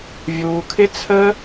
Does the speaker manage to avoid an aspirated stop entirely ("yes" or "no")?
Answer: no